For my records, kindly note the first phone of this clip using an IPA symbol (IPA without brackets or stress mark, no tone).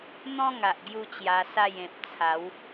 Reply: n̪